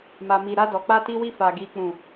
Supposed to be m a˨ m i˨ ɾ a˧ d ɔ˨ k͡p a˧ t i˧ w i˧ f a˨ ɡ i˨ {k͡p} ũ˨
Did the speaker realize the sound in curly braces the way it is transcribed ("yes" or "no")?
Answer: yes